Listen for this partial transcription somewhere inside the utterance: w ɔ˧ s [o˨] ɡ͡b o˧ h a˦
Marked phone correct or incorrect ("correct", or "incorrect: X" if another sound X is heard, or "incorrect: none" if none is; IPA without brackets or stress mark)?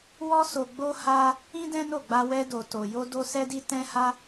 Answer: correct